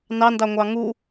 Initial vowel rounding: unrounded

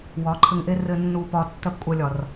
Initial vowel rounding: rounded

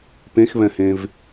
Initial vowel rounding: unrounded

